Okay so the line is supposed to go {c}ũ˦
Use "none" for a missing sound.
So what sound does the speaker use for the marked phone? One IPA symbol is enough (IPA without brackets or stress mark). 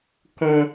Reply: k